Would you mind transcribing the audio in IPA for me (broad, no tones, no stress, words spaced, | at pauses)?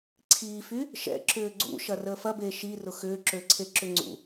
ǀʰiːfy | ʃɛ̰ ǁʏːɡ͡ǀṵ ʃɐrəːfɐbeː ʃirʊ xʏːǁøǀʰe ǁʏŋ͡ǀṵ